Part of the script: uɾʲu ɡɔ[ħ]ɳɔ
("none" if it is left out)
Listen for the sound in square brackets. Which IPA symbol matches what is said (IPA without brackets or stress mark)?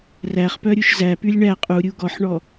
ħ